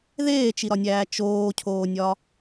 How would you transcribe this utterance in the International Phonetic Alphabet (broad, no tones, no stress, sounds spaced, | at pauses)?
ð eː t͡ʃ i ɾ ɒ nʲ æː t͡ʃ oː cʰ oː nʲ ɒ